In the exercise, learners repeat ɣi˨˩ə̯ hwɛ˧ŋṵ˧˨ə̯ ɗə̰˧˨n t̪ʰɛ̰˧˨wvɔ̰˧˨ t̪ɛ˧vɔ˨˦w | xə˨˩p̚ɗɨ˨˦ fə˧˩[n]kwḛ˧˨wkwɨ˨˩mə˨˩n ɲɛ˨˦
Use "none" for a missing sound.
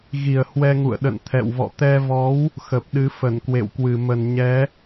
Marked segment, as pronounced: n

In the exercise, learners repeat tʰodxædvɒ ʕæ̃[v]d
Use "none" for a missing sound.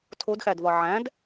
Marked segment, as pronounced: none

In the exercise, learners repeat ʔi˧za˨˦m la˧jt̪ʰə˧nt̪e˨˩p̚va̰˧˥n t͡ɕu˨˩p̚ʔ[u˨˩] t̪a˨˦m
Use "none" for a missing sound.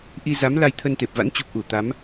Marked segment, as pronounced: u˧˩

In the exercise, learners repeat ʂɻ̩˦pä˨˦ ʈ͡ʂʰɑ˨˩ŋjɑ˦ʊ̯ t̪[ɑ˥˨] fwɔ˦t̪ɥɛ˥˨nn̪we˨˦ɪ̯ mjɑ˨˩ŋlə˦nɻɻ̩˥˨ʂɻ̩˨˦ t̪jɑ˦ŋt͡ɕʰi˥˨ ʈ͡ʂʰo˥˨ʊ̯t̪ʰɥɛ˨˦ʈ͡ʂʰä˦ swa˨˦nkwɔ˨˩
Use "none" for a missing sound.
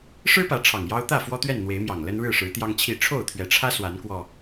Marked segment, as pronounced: ä˥˨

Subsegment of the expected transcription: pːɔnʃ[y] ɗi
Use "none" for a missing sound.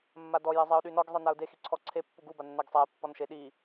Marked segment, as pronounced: e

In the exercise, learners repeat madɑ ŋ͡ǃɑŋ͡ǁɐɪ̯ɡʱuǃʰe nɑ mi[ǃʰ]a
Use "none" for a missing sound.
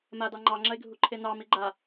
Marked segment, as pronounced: ɡ͡ǃ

